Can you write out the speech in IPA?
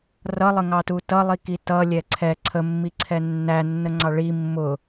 rʌlˠəŋɑtu tʌlˠiki tʌlʲɛ ǀʰɛ ǀʰəmːiǀʰɛ nːænːəŋ͡ǀɑ ɭi mːʊ

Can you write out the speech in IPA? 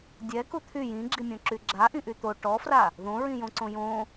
dʲɛku t̪ʰy jĩɡ͡ǁimʲõǁy ɡ͡ǁaʔĩʔy t̪o ʈɔfra | ðõɹĩjõǀõ jõ

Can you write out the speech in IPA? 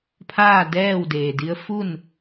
pʰaː˥˨ dɛː˥˨w deː˩di˧˥ə̯ fu˥˨n

